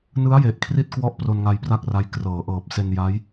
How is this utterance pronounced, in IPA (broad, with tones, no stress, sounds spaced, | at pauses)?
n ɯ˦˥ a̯ j e˨˩ ʔ kʰ r i˦˥ t̚ k w ɔ˦˥ ʔ p r o˧ n ŋ a˧ j p r a˥˩ k̚ r a˦˥ j k r ɤː˩˦ ʔ ɤː˨˩ p̚ s e˧ n j a˦˥ j